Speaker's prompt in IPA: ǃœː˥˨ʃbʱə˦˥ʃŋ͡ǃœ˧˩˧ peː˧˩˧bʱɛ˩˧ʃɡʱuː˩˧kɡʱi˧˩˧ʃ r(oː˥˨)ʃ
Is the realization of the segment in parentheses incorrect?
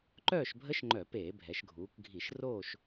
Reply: no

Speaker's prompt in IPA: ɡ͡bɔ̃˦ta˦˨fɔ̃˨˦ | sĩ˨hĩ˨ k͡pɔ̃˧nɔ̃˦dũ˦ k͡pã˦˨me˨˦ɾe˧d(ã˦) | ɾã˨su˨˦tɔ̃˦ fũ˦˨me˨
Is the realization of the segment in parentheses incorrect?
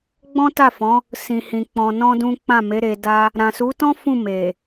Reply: yes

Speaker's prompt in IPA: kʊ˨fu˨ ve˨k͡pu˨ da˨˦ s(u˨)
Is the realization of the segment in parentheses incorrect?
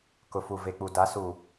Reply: no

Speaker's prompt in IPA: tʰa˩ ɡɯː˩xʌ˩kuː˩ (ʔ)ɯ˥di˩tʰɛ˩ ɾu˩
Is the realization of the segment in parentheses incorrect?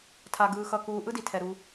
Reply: no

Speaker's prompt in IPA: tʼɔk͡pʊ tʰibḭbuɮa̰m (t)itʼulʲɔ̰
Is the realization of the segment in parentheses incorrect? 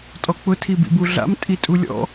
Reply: yes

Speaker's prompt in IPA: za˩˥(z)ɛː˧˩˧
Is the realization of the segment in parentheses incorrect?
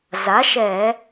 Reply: yes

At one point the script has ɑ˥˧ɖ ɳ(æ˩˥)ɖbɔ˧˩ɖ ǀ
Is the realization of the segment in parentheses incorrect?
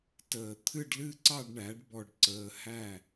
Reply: no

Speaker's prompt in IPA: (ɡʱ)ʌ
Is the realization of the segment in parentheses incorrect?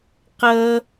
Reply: yes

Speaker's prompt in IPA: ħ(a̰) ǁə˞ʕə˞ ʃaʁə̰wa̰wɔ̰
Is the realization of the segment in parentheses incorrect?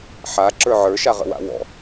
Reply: yes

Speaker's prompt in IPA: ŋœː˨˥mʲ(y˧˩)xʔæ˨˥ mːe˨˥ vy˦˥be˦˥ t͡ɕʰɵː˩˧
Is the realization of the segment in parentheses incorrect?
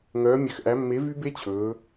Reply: yes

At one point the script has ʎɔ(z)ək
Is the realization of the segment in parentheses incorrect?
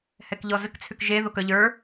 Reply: no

